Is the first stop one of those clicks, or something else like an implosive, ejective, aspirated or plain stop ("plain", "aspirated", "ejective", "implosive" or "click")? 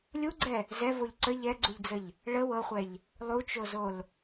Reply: click